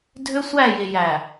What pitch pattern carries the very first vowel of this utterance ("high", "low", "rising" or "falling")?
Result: high